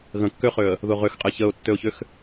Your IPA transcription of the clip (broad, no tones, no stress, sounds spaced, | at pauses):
ɣ ə̃ kː ø χ ø ə̯ | ð ʊ ʁ ø x qʼ ɛ ç ə ʊ̯ tː ø ʊ̯ ç ʏ x